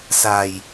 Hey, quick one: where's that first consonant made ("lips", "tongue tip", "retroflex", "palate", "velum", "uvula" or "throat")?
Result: tongue tip